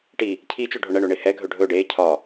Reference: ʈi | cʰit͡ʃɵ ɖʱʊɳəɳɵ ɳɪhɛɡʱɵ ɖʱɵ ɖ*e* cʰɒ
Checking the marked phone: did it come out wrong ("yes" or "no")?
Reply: no